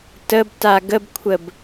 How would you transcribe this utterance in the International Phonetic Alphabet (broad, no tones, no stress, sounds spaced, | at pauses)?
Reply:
t ə b t a ɡ ə b kʷʰ ə b